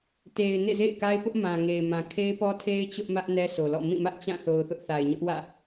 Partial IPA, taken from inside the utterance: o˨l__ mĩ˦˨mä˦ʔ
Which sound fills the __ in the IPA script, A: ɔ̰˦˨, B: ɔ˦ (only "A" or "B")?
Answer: A